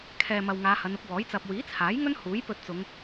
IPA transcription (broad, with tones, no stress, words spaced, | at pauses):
kʰɛː˨mɐ˨w ŋaː˨˧hɐ˨˧nʊ˨˥k̚wɔː˨˥j t͡sɐ˨p̚wiː˨˥t͡sʰaː˨˥jŋɵ˥n huː˨˥jpɵ˧t̚t͡sʊ˨˧ŋ